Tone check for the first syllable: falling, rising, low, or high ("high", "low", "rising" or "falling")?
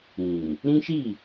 low